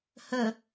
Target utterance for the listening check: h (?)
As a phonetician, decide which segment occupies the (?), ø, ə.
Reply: ə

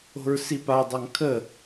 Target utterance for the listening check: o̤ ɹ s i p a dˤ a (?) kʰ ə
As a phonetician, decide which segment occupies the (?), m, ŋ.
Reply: ŋ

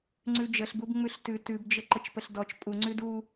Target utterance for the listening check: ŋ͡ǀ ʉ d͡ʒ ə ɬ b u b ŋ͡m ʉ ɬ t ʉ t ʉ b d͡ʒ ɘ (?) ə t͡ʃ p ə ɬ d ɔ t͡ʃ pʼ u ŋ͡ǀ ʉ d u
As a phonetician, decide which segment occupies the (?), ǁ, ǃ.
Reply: ǃ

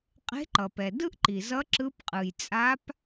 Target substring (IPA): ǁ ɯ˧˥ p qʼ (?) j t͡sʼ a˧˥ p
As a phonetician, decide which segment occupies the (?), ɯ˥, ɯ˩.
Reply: ɯ˩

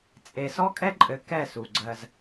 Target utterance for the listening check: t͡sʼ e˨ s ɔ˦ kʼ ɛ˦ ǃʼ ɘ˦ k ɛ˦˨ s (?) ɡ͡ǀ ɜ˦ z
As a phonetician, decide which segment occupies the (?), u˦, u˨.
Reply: u˨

